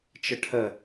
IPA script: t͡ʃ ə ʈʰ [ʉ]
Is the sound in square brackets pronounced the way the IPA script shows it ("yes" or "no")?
no